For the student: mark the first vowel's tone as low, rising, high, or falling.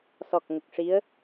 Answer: low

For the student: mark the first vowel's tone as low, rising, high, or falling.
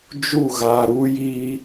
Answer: falling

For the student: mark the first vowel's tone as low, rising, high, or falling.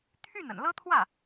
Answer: falling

